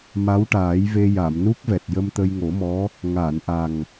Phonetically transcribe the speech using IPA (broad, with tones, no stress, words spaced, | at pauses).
ma˧˥wʈaː˨˩˦jve˧ ja˨˩˨mnu˦˥k̚vɛ˨˩t̚ jə˧mt̪ə˧jŋo˨˩˦mɔ˧˥ | ŋaː˨˩˨nʔa˨˩ŋ